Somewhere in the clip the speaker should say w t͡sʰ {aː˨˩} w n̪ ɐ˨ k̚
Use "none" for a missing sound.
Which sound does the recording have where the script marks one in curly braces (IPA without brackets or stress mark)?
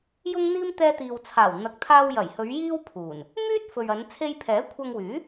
aː˨˩